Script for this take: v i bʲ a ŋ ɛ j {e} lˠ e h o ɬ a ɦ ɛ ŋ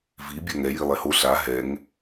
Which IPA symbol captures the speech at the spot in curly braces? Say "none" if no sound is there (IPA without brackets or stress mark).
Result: i